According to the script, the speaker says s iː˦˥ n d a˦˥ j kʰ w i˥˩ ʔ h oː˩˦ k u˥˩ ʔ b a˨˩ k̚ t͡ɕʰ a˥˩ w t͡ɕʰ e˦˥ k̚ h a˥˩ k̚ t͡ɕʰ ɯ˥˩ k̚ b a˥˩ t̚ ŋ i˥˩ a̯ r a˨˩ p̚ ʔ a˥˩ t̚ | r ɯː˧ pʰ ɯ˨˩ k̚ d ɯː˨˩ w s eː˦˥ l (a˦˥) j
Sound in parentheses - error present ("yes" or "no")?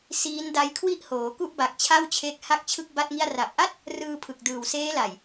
yes